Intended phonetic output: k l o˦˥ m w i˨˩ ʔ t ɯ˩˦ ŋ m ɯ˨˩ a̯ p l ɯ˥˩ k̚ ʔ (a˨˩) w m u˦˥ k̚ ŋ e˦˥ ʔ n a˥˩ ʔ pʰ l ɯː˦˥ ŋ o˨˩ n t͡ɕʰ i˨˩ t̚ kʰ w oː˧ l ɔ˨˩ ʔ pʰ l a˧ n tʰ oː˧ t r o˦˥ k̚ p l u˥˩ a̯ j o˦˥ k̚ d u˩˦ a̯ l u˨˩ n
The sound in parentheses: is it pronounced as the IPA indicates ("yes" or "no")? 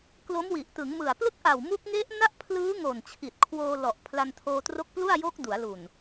yes